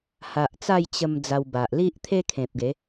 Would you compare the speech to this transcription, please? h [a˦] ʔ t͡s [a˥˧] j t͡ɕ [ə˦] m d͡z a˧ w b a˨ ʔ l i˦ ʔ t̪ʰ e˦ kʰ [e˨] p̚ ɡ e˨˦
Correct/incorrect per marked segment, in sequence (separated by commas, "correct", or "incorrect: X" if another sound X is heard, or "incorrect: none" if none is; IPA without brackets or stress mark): incorrect: a˨, correct, incorrect: ə˧, incorrect: ẽ˨